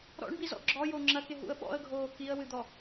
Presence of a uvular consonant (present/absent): absent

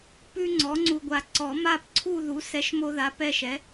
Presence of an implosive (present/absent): absent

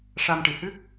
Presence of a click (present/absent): absent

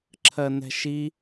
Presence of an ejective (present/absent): absent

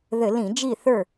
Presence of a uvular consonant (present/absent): absent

